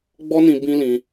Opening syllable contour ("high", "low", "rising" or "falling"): high